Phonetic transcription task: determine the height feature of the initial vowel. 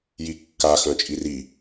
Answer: high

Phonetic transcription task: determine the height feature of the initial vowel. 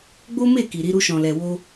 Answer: mid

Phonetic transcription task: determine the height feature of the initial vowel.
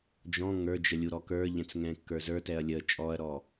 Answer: mid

